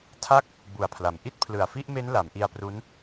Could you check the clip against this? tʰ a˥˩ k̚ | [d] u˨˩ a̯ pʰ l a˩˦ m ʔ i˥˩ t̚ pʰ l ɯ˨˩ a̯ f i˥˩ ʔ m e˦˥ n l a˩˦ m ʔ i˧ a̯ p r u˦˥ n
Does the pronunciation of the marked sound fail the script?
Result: yes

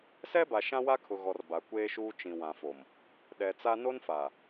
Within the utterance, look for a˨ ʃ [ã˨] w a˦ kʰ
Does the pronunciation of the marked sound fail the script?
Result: yes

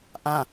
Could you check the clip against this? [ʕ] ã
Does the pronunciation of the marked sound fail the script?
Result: yes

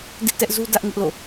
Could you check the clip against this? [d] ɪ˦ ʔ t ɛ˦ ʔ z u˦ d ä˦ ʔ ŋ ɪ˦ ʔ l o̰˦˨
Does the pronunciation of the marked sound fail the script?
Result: no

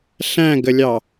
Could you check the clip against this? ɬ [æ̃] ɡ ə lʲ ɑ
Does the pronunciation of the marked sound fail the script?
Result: no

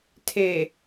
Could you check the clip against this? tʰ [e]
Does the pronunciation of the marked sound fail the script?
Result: no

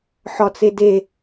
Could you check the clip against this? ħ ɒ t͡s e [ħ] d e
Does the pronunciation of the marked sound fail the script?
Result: yes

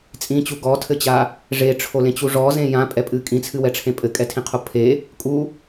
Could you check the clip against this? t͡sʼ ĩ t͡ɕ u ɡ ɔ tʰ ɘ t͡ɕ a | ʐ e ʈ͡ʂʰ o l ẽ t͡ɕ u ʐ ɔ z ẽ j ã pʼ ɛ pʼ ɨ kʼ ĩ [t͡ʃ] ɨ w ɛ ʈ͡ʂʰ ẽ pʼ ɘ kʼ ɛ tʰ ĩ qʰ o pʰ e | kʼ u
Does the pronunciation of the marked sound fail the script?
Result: yes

